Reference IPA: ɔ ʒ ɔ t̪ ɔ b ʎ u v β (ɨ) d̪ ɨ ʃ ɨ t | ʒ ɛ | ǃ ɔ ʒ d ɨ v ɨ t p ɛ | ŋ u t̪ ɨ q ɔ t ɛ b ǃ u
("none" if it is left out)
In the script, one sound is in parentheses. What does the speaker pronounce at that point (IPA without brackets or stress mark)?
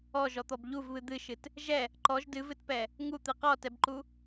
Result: ɨ